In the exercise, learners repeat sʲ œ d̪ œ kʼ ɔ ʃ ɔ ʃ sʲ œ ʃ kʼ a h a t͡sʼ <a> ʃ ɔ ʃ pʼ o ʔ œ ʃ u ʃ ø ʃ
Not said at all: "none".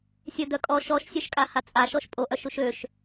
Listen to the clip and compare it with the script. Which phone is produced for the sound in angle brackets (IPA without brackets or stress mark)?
a